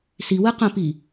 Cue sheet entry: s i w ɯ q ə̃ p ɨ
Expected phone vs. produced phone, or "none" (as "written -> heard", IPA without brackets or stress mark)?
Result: ɨ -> i